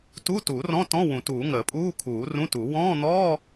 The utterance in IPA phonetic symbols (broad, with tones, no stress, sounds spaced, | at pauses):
t u˧˥˧ t u˨˩˦ r ɔ̃˧˥˧ t ɔ̃˧˥˧ w ũ˨˩˦ t uː˨˩˦ ŋ əː˨˩˦ pʼ uː˧˥˧ kʰ uː˨˩˦ r ũ˧˥˧ t u˨˩˦ w ɔ̃ː˧˥˧ n̪ ɔː˧˥˧